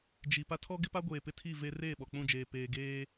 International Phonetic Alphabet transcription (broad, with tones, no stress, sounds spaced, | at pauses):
d͡ʒ i˨ p a˦ tʰ ɔ˦ ɡ ɪ˦ p a˦ ɡʷ eː˨ p ɪ˦ tʰ i˦˨ v e˦ r eː˦˨ ɓ ɔ˨ k͡p ũ˦˨ d͡ʒ eː˨ p eː˨ ɡ eː˦